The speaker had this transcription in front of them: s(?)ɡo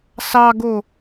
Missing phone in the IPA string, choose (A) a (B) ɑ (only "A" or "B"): B